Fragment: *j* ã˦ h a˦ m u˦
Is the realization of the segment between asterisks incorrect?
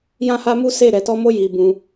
no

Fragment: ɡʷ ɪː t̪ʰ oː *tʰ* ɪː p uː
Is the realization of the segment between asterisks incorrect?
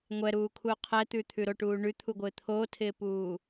no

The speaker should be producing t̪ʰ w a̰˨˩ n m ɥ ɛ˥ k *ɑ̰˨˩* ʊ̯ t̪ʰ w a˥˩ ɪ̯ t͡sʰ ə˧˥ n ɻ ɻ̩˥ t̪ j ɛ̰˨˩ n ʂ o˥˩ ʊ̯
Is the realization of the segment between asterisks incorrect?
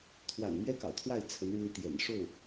no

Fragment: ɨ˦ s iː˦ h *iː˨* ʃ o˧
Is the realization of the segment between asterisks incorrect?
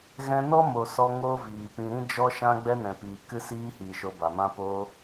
no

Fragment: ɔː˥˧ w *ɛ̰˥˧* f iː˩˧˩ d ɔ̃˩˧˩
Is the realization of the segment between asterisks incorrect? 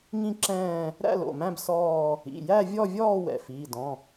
yes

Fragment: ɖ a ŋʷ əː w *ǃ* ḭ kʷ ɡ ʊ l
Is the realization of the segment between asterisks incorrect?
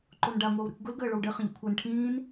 yes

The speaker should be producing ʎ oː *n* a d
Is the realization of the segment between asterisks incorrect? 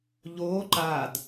yes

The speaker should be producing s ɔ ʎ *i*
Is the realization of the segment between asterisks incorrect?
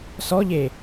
yes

